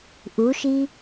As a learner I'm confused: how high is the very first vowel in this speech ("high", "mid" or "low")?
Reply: high